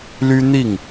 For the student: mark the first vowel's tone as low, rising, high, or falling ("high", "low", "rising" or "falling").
high